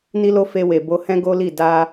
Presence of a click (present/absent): absent